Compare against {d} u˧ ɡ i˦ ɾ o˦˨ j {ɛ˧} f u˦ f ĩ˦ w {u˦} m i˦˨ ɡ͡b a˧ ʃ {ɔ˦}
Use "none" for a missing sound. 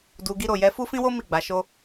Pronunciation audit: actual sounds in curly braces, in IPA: d, ɛ˧, o˦, o˦

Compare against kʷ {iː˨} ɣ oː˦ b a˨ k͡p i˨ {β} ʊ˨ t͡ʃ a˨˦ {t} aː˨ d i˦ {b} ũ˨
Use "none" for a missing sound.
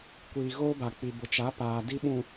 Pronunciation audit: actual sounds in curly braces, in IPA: iː˨, b, p, ɓ

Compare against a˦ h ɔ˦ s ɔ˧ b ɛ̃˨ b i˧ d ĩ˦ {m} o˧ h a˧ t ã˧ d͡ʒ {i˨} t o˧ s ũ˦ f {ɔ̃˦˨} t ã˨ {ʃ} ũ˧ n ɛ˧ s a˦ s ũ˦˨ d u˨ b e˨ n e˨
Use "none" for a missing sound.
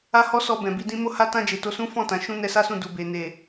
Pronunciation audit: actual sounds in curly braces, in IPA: m, e˨, ɔ̃˦˨, ʃ

